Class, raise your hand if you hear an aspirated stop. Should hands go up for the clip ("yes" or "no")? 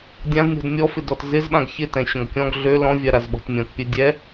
no